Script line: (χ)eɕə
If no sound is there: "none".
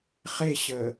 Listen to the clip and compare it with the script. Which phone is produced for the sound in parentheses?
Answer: χ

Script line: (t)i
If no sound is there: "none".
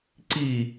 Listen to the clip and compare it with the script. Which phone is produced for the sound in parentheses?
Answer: ǀ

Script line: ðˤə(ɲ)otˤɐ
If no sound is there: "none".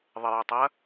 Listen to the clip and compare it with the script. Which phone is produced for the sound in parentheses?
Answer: j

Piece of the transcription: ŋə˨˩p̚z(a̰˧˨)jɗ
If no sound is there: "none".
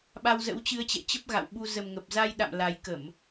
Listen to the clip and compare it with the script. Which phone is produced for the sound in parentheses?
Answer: a˧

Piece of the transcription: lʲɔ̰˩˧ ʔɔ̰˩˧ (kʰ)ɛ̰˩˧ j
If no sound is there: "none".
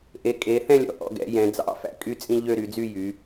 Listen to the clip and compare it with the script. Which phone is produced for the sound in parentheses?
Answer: ɡ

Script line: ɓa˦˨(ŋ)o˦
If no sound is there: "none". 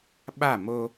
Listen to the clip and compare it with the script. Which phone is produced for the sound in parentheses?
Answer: m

